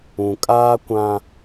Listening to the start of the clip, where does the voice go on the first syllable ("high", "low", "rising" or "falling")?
low